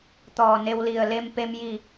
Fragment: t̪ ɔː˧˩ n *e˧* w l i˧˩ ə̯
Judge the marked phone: correct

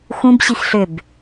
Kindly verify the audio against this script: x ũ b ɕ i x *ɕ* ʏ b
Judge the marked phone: incorrect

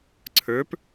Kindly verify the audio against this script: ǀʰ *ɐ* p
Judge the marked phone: incorrect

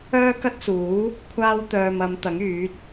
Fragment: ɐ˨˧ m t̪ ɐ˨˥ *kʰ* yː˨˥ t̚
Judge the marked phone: incorrect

